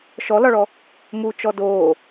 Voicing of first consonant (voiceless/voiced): voiceless